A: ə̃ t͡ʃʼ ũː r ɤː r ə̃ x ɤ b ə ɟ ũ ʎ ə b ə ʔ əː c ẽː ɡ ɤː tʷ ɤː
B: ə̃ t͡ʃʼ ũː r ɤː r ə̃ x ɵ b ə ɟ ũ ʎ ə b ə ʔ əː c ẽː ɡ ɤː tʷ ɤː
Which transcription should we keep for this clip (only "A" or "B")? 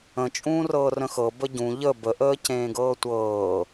A